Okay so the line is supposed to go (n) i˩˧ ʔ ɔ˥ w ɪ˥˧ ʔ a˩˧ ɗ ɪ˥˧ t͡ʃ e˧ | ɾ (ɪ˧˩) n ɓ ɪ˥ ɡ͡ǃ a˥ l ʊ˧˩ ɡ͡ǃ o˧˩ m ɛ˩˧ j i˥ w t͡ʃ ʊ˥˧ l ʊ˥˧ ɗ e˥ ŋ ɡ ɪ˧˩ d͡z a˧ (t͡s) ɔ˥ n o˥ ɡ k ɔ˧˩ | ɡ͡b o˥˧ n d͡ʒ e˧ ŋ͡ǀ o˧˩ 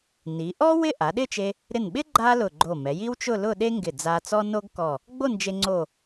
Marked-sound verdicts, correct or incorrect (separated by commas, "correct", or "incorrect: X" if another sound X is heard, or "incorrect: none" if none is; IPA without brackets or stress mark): correct, correct, correct